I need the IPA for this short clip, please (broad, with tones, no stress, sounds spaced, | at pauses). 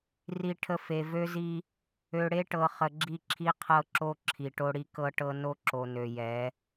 r i˨ ʈʰ ə˨ f e˨ v ø˦ z i˦ | ø˨ ɽ e˦ ʈ ɤ˨ χ ə˨ ɡ͡ǁ i˦˨ ǁʰ i˦ qʰ ɤ˦ ǁ o˦ ǁʰ i˨ ʈ o˦ ɽ i˦ k ɤ˦ ʈ ɤ˦ n o˦ ǁ o˨ n ø˨ j ɛ˨˦